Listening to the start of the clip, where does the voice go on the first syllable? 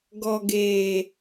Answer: low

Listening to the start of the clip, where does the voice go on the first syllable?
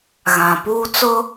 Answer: low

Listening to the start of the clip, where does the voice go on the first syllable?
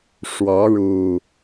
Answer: rising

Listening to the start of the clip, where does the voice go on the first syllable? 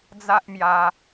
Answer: high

